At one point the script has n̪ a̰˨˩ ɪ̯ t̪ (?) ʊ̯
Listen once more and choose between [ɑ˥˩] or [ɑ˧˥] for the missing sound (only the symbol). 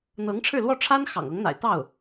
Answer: ɑ˥˩